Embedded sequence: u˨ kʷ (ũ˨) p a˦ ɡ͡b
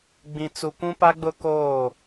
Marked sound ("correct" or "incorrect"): incorrect